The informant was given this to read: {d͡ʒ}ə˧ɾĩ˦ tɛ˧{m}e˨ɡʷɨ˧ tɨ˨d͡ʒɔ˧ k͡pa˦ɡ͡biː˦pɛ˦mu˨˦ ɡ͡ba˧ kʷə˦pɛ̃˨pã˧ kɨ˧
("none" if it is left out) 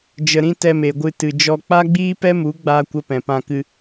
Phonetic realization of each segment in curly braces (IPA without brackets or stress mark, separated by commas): d͡ʒ, m